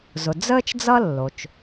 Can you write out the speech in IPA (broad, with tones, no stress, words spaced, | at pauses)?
zʊ˩ d͡zəː˥t͡ʃd͡zʌ˥ lːo˩t͡ʃ